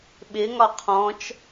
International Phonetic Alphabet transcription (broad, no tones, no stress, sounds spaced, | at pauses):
ɓ ɪ ŋ ɒ qʰ ɔ̃ t͡ʃ